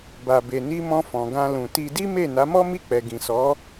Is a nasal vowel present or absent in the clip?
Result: present